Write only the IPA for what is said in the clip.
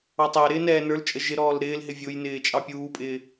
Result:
ɑ tˤ æ ɾ ɪː n ɛː n ə˞ l t͡ʃʼ ə ʒ ɪ ɾ ɔː l ɾ ɪː l ɦ ɪ vʲ ʊ j n ɪː t͡ʃʼ ɑ pʲ uː pʼ ɪː

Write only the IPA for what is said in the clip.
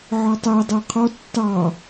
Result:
ʕ ɔ tˤ ɜ dˤ ɜ qʰ ɔ tː ɑ

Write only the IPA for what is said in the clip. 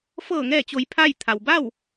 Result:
f ɤː˧˩ ŋ ɛː˧˩ t͡ɕ o˩˧ j pʰ a˥˨ j t̪ʰ a˩ w b a˥˨ w

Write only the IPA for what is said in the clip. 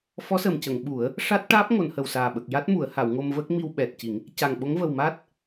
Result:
f ɔ˧˥ s ə˨˩ m c ə˨˩˨ ŋ ɓ u˨˩˦ ə̯ | ʂ a˦˥ t̚ ʈ aː˦˥ p̚ ŋ o˨˩˨ n h ə˨˩ w s aː˨˩ ɓ ə˨˩ k̚ j a˦˥ t̚ m u˨˩˨ ə̯ h a˨˩˨ w ŋ o˧ m v əː˦˥ k̚ m i˧ w ɓ ɛ˨˩ t̚ c i˨˩˦ ŋ | c a˨˩ ŋ ɓ o˧˥ ŋ v ə˨˩ w m a˦˥ t̚

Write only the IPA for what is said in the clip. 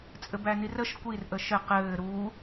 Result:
t͡sʼ ɘ b æ n i r ə ʃ kʷ i r ʔ ə ʃ ɘ q ɘː ɾ uː

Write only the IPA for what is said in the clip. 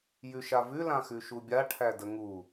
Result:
j ʉ ʃ a v ʉ l ã x ʉ ʃ u bʲ a ʈʰ æ d ə ŋ u

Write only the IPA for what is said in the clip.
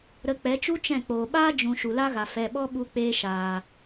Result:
ɾ ə˧ k͡p ɛ˨˦ t͡ʃ u˦ t͡ʃ ɛ̃˦˨ k͡p oː˨ ɓ aː˦ d͡ʒ ũ˨ ʃ u˨ l a˦ ɣ a˨ f ɛ˨ ɓ ɔ˦ ɓ u˧ k͡p eː˧ ʃ aː˨

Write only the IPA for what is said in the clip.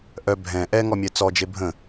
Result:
ʔ œ bʱ ɛ̃ ʔ ɛ ŋ ɔ mʲ ɛ t͡s ɔ d͡ʒ e bʱ ə̃

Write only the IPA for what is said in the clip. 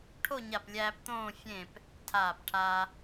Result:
ʈʰ o˥˧ ɲ a˧˩ p lʲ æː˧ p t̪ õː˥˧ fʲ ẽ˧˩ p | tʰ aː˧˩ p ʈʰ a˧

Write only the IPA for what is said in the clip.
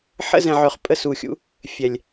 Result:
ħ ə̰˦ z ɛ̃˨ ʕ œ˨ χ pʼ ə˧ s u˨ xʲ ṵ˧ | fʲ ɛ˨ lʲ

